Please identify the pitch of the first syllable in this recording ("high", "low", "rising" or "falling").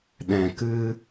low